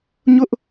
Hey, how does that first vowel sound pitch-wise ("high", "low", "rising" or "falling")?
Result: high